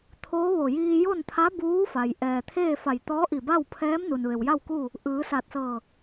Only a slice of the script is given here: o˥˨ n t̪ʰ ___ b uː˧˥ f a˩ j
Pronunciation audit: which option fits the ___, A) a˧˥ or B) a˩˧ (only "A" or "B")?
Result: A